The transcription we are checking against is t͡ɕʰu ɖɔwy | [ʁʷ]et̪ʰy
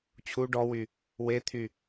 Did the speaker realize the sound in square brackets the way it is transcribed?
no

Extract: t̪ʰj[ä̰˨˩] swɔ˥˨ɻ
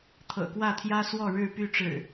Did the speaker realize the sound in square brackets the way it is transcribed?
no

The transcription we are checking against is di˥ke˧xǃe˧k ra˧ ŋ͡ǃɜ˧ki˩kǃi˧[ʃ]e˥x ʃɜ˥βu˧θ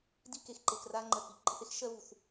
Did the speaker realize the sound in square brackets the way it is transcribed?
no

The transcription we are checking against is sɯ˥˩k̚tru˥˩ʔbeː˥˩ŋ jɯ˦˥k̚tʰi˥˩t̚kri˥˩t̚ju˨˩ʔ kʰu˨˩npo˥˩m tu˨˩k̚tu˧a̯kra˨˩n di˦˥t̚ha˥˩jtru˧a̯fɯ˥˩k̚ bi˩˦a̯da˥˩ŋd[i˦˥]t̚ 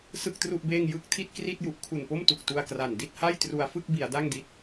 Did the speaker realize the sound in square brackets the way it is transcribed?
yes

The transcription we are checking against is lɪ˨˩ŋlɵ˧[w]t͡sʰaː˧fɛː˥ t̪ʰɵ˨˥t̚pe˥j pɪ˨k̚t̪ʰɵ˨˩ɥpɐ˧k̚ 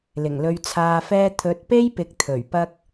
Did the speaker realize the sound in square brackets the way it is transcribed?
no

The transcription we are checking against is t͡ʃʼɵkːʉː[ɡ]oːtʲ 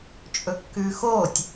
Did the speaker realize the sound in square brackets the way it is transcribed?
no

